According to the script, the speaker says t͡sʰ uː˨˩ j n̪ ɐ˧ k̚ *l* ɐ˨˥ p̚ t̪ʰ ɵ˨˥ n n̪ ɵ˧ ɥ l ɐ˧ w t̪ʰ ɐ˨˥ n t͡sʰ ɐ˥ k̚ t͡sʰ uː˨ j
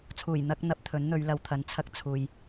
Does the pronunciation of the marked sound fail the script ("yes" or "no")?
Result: yes